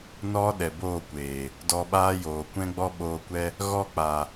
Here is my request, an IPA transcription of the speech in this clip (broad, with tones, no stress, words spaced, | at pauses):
nɔ˦ɗɛ˨boː˦˨kʷeː˨ | dɔ˧ɓaː˦joː˨ kʷɛ̃˦ɡ͡bɔ˦ɓoː˧kʷɛ˦ | ɣɔ˦˨k͡pa˨